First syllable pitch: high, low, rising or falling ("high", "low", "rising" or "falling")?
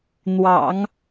low